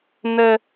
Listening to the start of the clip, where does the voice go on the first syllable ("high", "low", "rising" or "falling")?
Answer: high